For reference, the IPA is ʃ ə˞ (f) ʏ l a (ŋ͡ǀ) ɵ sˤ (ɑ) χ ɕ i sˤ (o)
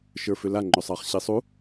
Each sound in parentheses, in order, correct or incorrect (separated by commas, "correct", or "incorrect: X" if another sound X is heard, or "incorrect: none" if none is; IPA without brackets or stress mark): correct, incorrect: ŋ͡ǃ, correct, incorrect: u